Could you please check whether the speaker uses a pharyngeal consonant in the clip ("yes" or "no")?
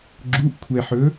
yes